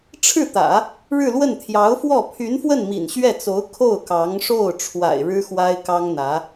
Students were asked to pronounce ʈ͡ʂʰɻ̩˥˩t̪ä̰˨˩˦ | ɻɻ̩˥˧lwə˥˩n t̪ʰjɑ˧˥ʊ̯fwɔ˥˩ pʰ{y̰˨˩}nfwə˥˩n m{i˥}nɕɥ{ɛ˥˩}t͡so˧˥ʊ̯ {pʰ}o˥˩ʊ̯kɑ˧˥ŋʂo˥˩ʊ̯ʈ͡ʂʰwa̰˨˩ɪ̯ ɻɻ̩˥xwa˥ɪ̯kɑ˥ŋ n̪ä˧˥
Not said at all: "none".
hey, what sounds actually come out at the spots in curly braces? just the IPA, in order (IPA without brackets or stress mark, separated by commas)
y˧˥, ḭ˨˩, ɛ˥˩, kʰ